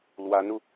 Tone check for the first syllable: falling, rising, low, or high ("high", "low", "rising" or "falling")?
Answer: rising